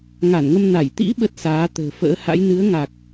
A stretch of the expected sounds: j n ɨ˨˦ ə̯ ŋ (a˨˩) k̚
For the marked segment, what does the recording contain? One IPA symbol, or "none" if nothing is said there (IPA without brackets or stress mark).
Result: a˨˩